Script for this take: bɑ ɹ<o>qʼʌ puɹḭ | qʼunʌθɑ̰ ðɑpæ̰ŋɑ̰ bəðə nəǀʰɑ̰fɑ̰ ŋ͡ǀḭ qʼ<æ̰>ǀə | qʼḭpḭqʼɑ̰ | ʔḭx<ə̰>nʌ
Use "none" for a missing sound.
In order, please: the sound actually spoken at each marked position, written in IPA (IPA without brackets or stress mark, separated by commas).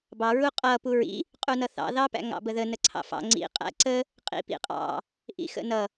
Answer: u, æ̰, ə̰